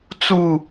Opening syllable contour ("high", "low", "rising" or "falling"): falling